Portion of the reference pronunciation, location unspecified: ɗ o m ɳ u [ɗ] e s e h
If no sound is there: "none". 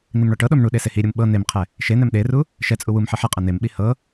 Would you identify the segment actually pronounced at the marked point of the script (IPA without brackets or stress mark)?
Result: ɗ